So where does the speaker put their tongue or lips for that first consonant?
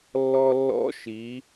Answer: tongue tip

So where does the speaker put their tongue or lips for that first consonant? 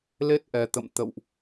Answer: tongue tip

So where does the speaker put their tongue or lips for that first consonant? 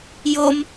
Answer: palate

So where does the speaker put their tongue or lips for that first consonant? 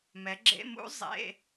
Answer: lips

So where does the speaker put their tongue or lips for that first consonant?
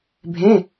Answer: lips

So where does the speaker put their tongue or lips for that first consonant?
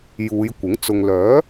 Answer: palate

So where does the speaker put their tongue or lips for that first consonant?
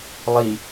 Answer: tongue tip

